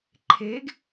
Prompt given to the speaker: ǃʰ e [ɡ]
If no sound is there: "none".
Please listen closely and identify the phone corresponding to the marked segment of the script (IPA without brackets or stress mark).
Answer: ɡ